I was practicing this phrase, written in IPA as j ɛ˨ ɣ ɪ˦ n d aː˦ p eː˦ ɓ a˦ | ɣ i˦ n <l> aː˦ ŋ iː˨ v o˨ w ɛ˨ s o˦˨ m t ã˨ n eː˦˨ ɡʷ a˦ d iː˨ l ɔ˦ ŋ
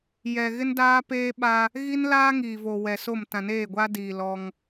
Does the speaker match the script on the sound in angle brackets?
yes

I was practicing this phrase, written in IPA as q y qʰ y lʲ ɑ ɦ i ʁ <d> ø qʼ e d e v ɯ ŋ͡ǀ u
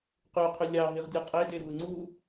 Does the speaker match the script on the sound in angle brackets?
no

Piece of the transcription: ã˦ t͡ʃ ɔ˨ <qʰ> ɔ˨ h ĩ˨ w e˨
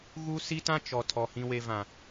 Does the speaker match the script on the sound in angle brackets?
no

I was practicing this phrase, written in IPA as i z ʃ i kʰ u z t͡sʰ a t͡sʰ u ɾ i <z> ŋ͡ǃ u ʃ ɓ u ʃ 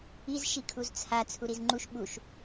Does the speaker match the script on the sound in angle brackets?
yes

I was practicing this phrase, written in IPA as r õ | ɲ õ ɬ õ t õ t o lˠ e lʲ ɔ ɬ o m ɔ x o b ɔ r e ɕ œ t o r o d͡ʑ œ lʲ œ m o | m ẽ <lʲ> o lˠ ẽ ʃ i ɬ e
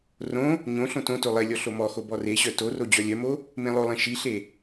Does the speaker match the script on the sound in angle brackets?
no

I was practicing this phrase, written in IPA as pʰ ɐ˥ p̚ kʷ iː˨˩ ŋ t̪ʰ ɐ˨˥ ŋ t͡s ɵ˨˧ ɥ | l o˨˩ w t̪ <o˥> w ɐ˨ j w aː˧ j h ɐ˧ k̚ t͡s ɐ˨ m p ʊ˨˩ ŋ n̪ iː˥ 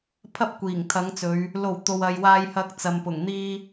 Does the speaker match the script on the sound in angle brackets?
no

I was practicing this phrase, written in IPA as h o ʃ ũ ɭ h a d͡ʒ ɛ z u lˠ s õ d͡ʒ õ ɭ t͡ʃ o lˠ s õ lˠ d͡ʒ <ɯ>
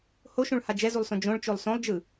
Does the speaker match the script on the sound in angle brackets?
yes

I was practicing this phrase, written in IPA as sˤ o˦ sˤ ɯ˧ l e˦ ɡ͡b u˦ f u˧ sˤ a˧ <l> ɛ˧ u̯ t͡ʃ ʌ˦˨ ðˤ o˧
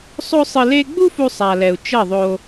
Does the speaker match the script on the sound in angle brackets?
yes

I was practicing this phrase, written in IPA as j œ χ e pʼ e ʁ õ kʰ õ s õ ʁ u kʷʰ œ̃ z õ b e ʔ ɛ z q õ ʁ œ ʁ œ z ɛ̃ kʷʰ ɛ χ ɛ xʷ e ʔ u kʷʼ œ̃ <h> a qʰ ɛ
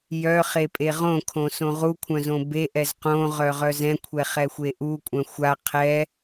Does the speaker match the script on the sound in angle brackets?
no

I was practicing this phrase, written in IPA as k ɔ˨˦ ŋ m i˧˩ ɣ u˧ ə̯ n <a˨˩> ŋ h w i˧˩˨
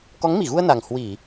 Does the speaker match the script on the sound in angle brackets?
yes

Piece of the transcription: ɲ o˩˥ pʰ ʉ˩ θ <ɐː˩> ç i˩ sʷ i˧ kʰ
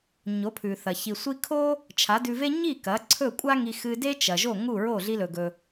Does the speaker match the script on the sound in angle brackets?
no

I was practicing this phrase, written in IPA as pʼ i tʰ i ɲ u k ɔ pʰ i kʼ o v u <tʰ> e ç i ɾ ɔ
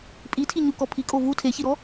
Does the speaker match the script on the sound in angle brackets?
yes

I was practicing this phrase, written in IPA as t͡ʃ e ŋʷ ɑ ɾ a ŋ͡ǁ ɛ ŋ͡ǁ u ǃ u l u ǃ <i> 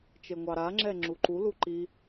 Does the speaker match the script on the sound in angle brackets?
yes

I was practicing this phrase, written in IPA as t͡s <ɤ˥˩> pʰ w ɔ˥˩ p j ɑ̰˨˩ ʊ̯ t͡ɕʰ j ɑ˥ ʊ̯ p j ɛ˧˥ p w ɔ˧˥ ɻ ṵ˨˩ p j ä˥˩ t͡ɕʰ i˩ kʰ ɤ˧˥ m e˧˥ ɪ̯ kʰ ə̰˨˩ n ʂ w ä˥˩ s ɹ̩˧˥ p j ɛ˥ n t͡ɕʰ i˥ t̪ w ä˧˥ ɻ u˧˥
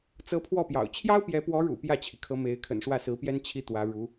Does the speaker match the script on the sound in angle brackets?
no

